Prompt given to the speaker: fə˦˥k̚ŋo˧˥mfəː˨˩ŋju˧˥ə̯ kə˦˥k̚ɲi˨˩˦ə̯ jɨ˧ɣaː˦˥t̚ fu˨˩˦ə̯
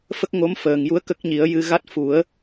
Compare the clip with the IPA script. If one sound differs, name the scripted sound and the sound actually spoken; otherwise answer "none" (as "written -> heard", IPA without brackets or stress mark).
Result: aː˦˥ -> a˦˥